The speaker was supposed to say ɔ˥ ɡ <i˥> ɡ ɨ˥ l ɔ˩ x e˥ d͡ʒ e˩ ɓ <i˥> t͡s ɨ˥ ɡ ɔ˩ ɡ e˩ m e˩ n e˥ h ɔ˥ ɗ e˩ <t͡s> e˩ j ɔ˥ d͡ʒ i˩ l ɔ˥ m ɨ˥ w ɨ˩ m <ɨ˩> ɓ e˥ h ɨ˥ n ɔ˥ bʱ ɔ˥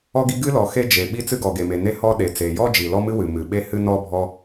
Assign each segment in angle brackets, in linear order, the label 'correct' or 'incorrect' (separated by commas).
correct, correct, correct, correct